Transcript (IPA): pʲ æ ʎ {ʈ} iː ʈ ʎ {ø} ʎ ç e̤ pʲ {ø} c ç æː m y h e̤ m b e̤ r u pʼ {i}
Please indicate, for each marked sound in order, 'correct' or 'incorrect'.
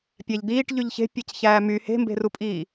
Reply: incorrect, incorrect, correct, incorrect

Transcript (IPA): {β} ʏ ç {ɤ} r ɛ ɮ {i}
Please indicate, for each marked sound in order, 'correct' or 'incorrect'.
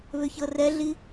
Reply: correct, correct, correct

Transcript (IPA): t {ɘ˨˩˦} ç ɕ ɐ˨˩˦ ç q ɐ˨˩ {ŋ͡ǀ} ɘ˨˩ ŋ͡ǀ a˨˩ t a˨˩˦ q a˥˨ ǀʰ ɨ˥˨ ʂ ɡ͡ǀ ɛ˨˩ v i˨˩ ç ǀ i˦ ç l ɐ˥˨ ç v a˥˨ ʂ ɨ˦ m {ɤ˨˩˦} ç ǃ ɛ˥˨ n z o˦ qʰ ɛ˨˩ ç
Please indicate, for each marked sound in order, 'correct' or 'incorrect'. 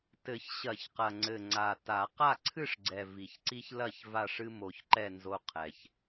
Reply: correct, correct, incorrect

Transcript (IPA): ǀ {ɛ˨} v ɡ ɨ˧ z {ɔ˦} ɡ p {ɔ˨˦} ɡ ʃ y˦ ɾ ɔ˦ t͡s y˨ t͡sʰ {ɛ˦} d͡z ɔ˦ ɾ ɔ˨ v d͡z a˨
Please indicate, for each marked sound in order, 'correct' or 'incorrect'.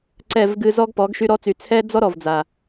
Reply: incorrect, correct, correct, correct

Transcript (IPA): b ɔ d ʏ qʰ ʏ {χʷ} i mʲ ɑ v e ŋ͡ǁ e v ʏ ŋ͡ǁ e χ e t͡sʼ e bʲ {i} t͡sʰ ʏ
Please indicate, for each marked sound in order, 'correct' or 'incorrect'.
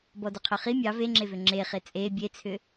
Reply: incorrect, incorrect

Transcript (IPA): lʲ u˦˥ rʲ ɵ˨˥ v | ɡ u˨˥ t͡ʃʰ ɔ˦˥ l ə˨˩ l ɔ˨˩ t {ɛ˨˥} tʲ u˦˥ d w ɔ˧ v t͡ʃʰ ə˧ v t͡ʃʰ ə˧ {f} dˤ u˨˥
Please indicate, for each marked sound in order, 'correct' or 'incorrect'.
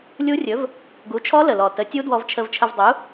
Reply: incorrect, incorrect

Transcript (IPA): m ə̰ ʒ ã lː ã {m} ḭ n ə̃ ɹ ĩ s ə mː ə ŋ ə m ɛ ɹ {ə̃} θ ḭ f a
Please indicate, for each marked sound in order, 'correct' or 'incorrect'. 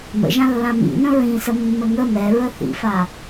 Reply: correct, incorrect

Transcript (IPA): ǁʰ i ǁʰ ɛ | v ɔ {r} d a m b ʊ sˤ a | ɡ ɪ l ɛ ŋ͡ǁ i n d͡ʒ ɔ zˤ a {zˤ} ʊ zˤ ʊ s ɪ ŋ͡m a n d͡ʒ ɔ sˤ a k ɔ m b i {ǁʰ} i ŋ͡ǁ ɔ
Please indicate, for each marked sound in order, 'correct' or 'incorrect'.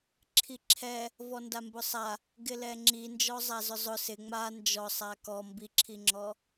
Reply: incorrect, incorrect, correct

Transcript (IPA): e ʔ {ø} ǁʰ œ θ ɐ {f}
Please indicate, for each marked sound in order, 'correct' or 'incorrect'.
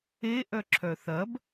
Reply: incorrect, incorrect

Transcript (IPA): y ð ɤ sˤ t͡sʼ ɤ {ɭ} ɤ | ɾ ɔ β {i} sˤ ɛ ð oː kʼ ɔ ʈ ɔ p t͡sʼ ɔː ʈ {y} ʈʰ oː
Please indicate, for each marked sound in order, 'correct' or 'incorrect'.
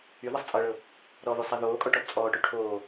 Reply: correct, incorrect, correct

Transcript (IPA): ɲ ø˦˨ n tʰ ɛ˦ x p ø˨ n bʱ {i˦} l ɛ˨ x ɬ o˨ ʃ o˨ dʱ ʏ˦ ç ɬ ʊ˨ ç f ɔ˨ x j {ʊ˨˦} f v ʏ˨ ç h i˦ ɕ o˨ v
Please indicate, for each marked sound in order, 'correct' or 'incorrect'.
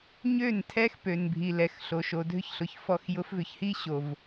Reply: incorrect, correct

